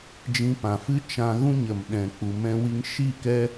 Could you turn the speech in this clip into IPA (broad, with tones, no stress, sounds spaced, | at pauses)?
d͡ʒ ĩ˧ p ã˨ f ɨ˦ t͡ʃ ã˧ ɣ ũ˦ ɲ ə˨ m ɗ ɛ̃˨ k͡p u˨ m ɛ̃˧ w i˧ ŋ ʃ i˦˨ k ɛ˦